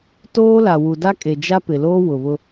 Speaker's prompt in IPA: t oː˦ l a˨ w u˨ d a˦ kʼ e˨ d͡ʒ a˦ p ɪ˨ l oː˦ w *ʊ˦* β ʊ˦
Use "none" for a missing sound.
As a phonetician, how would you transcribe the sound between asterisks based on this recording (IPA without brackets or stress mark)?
ʊ˨